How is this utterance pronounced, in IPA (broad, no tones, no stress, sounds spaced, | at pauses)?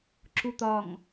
ǁ u t̪ ɒ ŋ